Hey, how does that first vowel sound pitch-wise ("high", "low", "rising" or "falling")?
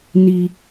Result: high